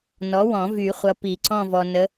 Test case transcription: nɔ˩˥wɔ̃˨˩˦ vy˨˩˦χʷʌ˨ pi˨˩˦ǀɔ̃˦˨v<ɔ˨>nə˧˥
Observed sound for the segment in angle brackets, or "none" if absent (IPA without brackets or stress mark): ɔ˨